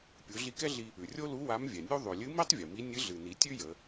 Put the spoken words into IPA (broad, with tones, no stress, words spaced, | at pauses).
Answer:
pʲu˩˧ ɮi˧kɛ˥ɮi˧ | ʉ˩rʲo˥lu˧˥ wa˧˥mvʲɛ˩nʲu˥ ðˤʉ˩lʲɨ˧˥mi˥tˤ vʲɨ˩mi˧˥ nʲɨ˧˥ɮɨ˩ni˩˧ tʲʉ˥jə˩˧